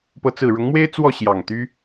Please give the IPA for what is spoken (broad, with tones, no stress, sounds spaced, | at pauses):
p ɤ˨˦ t͡s ɹ̩˨˩ ɻ ʊ˨˦ ŋ m w e˦ ɪ̯ t͡s w ɔ˥˨ ɕ j ɑ˨˩ ŋ t̪ y˦